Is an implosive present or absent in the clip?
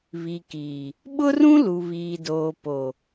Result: present